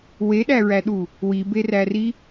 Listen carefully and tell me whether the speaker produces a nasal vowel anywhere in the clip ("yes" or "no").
no